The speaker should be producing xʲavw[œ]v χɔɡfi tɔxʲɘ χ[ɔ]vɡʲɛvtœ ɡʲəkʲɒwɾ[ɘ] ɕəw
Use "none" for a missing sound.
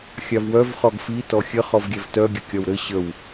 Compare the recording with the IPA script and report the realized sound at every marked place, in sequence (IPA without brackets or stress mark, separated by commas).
œ, ɔ, ɘ